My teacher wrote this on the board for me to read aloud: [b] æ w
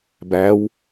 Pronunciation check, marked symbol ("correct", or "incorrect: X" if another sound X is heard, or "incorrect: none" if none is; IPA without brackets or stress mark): correct